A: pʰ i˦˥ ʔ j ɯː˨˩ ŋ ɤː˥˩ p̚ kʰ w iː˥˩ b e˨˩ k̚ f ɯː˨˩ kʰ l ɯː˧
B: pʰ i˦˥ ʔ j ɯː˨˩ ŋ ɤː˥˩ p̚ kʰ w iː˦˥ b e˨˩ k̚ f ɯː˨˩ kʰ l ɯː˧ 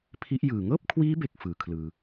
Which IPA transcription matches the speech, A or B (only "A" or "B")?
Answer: B